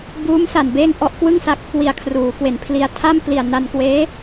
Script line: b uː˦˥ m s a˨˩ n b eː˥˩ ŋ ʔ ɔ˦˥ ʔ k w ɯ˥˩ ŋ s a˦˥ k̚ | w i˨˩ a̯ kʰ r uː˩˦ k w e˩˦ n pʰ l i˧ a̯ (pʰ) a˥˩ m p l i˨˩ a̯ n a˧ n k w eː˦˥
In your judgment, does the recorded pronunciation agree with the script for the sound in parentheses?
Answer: no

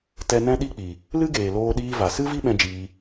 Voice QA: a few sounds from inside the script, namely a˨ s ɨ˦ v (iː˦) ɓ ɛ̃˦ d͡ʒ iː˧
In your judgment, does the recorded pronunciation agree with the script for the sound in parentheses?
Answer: no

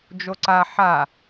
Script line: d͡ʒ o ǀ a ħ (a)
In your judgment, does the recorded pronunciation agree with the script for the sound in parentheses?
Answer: yes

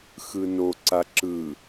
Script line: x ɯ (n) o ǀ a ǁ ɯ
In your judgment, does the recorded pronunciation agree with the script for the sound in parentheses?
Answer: yes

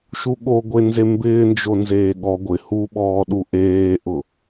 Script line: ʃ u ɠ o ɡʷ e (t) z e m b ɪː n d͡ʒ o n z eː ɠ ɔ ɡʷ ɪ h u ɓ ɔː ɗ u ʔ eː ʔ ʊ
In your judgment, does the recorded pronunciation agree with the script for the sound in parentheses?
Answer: no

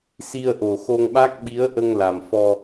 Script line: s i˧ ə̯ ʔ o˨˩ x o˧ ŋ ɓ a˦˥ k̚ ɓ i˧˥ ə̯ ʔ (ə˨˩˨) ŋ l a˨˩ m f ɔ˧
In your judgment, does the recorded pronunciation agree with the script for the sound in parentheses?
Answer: no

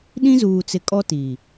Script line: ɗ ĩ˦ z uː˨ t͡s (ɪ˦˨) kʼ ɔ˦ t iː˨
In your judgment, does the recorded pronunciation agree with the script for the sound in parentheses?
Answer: no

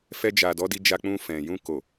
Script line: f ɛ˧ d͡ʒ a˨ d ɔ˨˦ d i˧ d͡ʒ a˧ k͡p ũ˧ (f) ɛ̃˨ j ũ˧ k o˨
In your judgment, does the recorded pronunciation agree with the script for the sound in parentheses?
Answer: yes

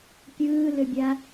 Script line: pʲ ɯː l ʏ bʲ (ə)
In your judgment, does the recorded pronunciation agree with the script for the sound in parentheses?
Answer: no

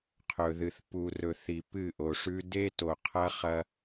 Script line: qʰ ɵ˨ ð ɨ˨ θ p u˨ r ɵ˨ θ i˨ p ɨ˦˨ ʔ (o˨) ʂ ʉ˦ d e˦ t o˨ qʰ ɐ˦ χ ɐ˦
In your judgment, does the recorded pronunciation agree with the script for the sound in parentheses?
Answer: yes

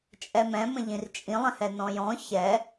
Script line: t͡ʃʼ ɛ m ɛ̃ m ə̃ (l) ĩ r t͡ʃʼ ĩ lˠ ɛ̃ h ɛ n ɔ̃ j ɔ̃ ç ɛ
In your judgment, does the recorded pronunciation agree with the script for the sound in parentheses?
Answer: no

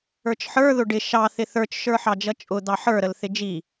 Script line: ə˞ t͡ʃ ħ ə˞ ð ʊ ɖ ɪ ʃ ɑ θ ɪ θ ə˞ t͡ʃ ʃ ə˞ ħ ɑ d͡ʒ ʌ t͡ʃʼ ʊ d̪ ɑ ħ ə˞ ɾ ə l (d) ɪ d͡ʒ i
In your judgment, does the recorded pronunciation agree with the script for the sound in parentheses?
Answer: no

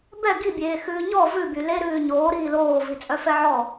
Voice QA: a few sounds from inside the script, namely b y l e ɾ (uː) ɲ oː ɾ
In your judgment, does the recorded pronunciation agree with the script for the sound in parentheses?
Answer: no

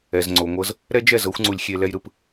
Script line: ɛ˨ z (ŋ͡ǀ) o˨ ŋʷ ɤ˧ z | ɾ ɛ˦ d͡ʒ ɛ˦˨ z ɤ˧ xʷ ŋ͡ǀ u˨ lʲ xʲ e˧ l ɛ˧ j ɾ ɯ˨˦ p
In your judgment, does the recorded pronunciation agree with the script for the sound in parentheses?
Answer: yes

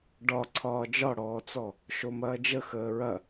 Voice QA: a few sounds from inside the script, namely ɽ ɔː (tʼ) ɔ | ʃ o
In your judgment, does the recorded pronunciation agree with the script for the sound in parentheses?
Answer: no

